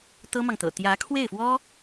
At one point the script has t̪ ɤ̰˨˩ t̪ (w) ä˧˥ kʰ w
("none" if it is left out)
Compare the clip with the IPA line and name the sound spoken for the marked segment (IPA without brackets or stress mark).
j